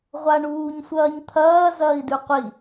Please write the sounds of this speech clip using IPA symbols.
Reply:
ʁʷaɳuːɲsʷɐːɲt̪ʰɐː zɐːi̯dʉqʷi

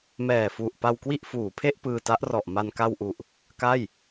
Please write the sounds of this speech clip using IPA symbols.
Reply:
mɛː˨˩fu˨˩ʔ pa˧w kwi˥˩ʔfuː˩˦pʰe˥˩ʔ pɯː˧ta˦˥ʔrɔ˨˩ʔma˧n ka˧wʔu˨˩ʔ | ka˥˩j

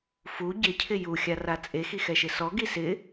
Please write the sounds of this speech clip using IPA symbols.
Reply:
fu ɟɪcʰɪ juxʲara t͡sʼexixɛʃɪ sɔɡi sɪ

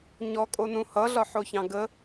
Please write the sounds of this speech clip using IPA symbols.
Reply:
ɲɔkʼonũ hʌɮɒħoçɑ̃ ɡə

